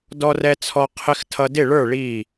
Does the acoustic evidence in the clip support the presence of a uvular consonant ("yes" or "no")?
yes